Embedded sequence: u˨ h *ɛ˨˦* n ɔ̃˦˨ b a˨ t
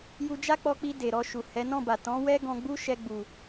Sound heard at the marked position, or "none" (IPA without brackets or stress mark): ɛ˨˦